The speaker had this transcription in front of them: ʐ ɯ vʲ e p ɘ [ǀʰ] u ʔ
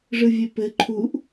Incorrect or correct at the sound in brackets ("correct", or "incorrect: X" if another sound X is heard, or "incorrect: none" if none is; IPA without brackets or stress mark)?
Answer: incorrect: ǃʰ